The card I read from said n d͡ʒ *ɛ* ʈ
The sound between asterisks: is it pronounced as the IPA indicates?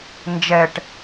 yes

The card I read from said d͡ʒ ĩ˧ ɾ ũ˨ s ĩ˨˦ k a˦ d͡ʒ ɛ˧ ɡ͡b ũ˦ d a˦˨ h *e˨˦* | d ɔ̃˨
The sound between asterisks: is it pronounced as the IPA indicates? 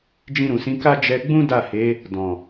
yes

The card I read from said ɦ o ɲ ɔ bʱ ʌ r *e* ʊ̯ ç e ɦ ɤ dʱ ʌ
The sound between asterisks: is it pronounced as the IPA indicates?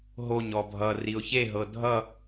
no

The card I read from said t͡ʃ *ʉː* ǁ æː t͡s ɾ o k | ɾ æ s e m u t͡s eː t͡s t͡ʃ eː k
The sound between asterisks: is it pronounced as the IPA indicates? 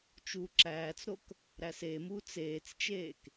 no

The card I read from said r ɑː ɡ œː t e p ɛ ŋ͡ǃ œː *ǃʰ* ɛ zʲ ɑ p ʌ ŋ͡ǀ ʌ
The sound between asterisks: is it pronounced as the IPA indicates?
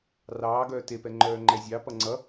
no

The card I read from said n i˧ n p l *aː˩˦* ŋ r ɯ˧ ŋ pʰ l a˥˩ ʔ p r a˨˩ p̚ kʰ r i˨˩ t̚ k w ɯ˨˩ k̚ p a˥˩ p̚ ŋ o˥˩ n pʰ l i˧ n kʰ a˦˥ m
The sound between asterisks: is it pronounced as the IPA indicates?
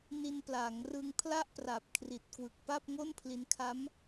yes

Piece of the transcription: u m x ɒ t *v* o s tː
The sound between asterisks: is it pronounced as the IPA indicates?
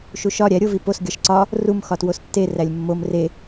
no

